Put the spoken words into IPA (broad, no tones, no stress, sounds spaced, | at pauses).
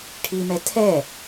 ʈʰ i m ɛ tʰ ɛ